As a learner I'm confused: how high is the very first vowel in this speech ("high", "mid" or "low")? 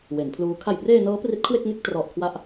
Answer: mid